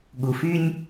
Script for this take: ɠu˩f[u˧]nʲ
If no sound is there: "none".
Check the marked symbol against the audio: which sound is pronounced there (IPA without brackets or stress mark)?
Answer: y˧